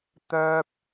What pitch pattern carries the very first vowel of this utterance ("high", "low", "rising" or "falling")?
high